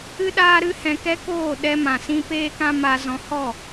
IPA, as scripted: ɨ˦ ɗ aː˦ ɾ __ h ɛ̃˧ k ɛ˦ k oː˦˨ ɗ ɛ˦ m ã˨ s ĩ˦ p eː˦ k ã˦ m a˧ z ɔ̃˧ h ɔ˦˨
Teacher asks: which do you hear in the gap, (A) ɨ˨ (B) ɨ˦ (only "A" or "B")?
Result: B